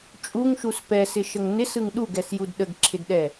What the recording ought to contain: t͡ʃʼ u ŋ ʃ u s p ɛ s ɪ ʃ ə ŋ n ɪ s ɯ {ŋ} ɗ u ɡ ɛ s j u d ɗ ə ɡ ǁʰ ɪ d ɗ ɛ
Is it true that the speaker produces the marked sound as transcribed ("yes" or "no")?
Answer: yes